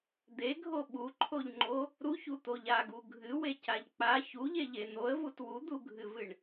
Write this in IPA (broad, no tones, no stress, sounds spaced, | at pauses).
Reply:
d̪ e ɡʱ o ɓ u ǃʰ o ʎ ŋ͡ǃ o | ɾ u ç u t̪ o ʎ a ɡ u ɡʱ ɨ w e c a ʎ k͡p a ç u ʎ e ʎ e n̪ o ə̯ v u t w u d̪ u ɡʱ ɨ v ɨ ɳ